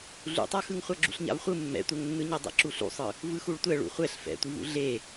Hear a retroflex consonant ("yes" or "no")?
yes